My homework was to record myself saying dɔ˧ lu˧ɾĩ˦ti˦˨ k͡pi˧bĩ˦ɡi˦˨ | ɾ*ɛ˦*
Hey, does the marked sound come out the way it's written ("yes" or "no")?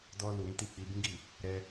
no